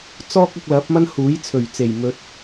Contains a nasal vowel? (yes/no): no